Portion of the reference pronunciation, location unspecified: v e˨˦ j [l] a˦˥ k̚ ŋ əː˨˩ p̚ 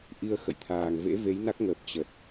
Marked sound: incorrect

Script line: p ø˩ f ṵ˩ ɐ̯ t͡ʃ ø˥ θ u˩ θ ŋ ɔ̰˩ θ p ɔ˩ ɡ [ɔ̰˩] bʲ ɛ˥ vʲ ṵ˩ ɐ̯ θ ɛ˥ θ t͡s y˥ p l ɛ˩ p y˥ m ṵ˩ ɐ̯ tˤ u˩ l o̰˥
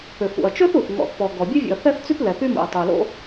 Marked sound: incorrect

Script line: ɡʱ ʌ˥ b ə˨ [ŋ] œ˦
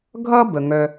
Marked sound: correct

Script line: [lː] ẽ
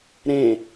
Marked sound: incorrect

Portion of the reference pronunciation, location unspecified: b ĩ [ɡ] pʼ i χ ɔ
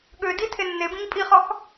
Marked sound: incorrect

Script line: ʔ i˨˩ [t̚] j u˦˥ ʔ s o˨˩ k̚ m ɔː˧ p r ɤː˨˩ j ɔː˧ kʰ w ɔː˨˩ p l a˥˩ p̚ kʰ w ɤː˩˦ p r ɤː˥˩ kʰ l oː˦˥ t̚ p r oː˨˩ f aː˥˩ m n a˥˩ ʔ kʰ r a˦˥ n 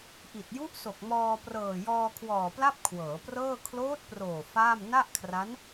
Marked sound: correct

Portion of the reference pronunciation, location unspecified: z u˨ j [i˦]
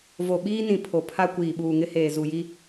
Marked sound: correct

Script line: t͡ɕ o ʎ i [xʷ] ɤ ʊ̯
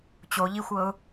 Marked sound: correct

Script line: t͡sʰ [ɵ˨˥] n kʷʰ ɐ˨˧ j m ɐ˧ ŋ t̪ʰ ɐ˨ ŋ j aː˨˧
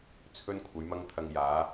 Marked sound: incorrect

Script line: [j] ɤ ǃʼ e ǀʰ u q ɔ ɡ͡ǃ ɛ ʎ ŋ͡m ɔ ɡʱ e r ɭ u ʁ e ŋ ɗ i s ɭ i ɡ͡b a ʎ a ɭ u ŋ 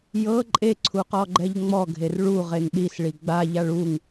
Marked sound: correct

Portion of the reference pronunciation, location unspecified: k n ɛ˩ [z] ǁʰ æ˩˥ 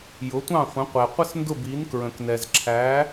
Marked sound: correct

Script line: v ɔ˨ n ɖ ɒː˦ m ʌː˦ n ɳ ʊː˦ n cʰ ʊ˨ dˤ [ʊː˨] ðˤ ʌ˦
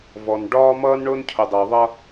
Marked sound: correct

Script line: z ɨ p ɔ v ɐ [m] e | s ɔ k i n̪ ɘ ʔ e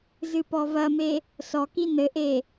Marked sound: correct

